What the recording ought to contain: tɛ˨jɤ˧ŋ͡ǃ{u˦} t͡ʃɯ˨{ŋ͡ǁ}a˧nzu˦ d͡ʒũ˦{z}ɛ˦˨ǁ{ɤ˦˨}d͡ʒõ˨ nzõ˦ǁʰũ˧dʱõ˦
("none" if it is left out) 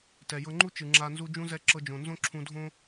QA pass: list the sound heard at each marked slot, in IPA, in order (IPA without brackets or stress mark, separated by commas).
u˦, ŋ͡ǁ, z, ɤ˧